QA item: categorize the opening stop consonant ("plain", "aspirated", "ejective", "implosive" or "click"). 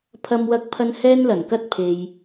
aspirated